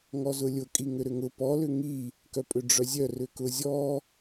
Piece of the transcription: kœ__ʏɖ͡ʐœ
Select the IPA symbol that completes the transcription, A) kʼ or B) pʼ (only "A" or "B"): B